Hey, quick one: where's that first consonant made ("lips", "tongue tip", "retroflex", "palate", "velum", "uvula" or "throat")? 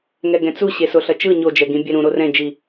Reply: velum